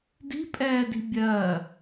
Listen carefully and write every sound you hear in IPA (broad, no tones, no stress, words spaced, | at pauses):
di̤pʼɛːdi̤ bʲɜ